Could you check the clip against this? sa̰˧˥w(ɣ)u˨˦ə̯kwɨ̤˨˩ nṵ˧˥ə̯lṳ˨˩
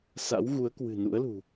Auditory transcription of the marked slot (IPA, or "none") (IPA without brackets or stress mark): ɣ